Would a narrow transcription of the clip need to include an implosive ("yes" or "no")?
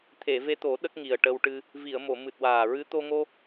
yes